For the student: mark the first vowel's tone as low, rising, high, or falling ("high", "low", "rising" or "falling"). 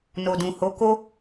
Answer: low